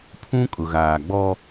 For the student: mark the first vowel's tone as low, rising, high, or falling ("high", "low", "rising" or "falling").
high